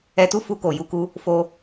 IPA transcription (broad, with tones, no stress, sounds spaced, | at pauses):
ɛ˧ t u˦ f u˧ k o˨ j u˧ k u˦ | f o˦